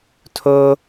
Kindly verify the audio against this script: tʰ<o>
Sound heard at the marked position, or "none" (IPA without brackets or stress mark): o